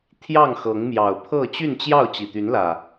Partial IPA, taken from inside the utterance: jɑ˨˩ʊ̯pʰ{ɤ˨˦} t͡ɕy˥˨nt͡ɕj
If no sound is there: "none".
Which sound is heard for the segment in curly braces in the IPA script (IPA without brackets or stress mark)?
ɤ˥˨